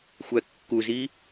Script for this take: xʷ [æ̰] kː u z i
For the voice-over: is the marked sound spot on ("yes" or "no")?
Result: no